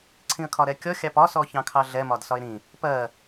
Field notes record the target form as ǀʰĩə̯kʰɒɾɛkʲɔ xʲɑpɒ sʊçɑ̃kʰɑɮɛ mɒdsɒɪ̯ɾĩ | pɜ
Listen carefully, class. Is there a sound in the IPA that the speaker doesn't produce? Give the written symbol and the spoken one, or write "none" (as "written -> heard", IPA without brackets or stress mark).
ʊ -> ɔ